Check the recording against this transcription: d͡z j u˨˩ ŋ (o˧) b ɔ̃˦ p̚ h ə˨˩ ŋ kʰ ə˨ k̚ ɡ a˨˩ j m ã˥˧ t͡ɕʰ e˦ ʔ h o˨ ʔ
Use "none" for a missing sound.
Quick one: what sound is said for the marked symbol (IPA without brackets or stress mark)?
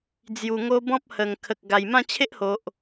o˧